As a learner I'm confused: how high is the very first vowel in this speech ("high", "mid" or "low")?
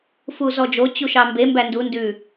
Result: high